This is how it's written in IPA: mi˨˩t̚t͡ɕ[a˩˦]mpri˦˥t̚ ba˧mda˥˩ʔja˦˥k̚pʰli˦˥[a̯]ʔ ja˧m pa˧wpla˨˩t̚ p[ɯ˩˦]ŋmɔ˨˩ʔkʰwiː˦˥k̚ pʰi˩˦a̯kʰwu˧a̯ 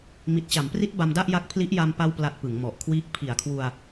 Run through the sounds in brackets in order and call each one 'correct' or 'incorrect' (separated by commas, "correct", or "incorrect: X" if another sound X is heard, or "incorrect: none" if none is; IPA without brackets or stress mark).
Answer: correct, incorrect: none, correct